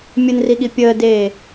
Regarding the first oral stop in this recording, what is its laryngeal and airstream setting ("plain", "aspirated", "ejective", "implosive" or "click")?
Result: implosive